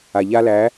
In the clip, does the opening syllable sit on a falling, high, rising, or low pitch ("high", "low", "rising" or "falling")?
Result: low